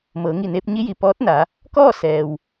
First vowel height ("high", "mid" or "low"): mid